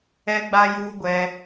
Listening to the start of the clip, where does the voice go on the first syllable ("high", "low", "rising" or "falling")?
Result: high